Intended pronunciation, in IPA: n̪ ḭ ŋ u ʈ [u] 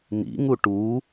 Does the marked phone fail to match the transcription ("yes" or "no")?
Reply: no